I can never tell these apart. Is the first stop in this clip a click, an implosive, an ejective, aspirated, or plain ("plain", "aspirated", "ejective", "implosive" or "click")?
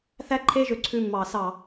click